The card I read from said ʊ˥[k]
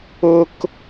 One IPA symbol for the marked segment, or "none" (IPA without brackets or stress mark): k